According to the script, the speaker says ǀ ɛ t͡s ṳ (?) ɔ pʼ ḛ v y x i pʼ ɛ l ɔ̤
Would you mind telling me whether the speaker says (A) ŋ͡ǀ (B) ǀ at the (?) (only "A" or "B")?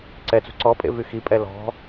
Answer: B